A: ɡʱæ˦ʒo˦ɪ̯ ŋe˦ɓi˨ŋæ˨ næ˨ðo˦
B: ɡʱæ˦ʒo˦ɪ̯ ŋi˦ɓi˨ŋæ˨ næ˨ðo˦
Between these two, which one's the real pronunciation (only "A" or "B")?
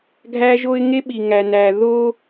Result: A